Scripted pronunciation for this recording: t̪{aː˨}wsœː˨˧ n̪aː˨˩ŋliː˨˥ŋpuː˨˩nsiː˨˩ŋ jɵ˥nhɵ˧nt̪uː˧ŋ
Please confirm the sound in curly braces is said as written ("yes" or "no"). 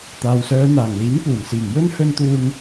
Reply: yes